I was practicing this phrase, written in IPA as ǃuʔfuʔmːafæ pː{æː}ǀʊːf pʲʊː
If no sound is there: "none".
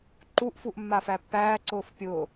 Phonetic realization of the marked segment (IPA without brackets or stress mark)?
æː